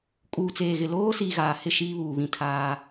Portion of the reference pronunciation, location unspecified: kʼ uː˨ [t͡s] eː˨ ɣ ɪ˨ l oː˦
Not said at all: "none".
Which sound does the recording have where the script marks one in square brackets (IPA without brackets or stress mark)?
t͡s